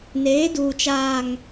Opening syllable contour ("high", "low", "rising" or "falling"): rising